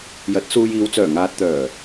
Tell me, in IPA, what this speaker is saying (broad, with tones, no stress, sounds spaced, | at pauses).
j ɐ˨˥ t̚ s uː˧ j iː˨˧ w t͡s œː˨˩ ŋ aː˨ t̚ t̪ œː˨˩